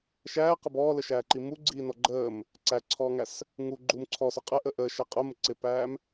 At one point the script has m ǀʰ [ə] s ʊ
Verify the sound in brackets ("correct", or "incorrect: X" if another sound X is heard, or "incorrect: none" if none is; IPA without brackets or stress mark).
incorrect: ɔ